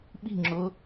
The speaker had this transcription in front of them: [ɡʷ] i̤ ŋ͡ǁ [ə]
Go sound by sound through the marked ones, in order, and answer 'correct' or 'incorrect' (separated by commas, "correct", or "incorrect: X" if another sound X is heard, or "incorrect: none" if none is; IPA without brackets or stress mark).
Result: incorrect: ɓ, incorrect: ʊ